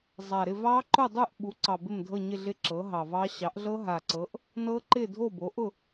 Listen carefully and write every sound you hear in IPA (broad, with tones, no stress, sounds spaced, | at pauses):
zˤ a˨˩ ɾ ɪ˥˨ v ɑ˦˥ ǃ ʊ˥˨ dˤ u˥˨ ʔ ɓ u˩˥ ǀ ɑ˨˩ b ɪ˥˨ m dʱ ɤ˥˨ ɲ ɪ˥˨ ɮ ɪ˦˥ ǁ ɤ˩˥ ɦ ɑ˨˩ v ɑ˦˥ ɕ ɑ˩˥ ʔ ɮ ɤ˦˥ ɦ a˨˩ ǀ ɤ˩˥ ʔ | n ɤ˦˥ ǃ ɪ˥˨ dʱ o˥˨ b o˩˥ ʔ ʊ˥˨